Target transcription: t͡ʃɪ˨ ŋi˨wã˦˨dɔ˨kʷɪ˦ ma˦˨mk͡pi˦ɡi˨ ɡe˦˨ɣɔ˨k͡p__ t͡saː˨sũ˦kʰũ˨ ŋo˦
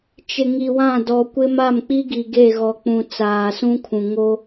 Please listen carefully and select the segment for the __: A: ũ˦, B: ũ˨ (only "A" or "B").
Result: B